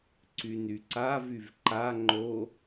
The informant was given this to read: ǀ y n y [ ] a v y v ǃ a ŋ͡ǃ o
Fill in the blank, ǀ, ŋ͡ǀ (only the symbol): ǀ